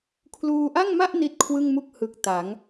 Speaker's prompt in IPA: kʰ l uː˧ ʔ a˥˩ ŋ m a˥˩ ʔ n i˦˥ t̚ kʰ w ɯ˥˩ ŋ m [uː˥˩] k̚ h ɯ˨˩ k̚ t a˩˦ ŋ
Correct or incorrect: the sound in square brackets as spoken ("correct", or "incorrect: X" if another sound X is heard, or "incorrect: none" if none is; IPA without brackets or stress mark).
incorrect: u˥˩